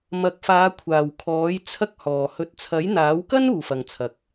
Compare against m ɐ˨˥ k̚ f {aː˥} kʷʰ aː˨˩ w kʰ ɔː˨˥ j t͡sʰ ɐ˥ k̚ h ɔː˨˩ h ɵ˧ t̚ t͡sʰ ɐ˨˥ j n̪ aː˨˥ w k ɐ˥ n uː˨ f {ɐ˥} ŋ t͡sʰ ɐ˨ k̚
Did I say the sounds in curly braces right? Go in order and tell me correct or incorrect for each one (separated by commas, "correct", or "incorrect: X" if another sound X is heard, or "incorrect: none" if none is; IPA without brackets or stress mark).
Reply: incorrect: aː˨˧, incorrect: ɐ˨